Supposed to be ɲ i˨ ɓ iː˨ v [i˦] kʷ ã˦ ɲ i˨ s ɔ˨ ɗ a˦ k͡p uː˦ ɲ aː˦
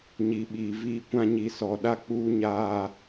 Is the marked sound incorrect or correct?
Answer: incorrect